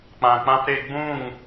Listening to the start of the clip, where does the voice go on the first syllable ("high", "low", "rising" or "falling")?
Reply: low